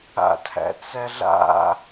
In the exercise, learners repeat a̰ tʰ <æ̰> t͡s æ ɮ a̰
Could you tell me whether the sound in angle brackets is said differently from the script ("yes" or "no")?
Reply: no